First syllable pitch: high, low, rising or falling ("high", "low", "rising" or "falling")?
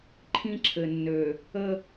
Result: high